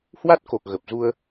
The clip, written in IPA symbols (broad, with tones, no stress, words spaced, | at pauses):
hwa˦˥t̚ko˨˩k̚ ɣə˨˩p̚zu˧ə̯